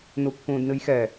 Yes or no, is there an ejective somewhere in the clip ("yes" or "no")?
no